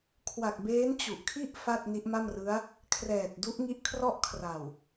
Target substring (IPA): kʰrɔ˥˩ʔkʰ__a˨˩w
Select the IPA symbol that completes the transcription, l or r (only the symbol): r